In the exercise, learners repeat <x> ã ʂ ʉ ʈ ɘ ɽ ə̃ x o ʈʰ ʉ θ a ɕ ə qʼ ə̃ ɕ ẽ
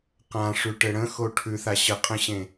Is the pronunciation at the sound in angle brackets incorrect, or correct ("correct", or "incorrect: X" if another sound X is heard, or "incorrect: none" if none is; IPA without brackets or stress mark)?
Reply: incorrect: q